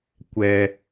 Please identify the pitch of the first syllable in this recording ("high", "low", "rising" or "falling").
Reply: low